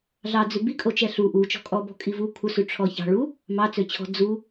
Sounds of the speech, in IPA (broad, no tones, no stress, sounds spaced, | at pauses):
ɮ ɑ d͡z ʉ b i kʼ o t͡ʃ ɛ ɬ u ʔ u t͡ʃ ɔ̤ kʼ ɔ b ɔ̤ kʼ i v u kʰ u s ʉ ʈ͡ʂʰ ɔ ç ɑ̤ ɭ u | m ɑ t͡s ø t͡ɕʰ ɔ̤ d͡z u